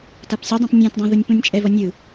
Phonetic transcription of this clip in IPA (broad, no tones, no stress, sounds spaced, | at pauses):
t a p sʲ u dˤ ĩ p nʲ ɛ̃ t dˤ ã ð u nʲ p ũ nʲ t͡ʃʼ ɛ v ʌ nʲ ɯ